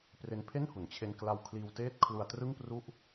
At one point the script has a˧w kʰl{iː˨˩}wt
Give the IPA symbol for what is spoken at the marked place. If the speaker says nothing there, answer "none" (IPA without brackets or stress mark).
iː˧